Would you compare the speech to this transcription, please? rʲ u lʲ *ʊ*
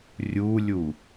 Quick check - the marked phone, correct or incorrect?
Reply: incorrect